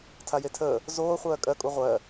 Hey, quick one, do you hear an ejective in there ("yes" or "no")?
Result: yes